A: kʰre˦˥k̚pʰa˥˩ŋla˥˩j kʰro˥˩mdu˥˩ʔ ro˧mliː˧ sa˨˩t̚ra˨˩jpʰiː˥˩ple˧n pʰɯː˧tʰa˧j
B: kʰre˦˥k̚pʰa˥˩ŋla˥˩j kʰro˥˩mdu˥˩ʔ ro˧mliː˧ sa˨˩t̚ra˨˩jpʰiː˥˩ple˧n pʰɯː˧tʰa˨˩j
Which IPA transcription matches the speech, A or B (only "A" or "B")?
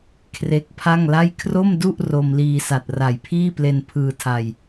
A